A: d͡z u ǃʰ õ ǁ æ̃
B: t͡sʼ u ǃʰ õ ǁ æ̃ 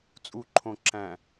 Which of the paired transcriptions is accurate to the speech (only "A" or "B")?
B